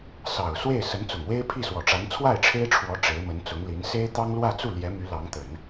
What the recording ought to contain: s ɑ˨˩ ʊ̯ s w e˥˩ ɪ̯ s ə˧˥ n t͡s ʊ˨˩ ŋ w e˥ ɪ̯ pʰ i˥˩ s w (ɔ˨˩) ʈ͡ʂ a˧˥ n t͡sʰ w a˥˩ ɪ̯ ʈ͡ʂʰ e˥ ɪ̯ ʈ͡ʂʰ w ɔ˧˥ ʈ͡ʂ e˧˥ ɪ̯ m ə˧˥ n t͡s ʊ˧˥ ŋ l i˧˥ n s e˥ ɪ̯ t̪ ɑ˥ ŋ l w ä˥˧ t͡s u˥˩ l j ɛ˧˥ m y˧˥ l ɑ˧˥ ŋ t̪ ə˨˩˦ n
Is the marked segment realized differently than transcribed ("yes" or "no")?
no